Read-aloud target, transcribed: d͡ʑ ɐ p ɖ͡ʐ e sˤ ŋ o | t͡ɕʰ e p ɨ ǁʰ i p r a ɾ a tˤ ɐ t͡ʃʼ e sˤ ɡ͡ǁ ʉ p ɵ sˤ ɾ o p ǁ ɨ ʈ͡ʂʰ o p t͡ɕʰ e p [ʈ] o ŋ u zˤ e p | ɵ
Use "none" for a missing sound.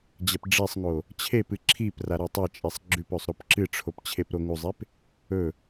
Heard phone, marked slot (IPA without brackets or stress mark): ɾ